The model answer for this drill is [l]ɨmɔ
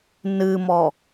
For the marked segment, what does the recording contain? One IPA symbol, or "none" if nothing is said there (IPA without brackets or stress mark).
n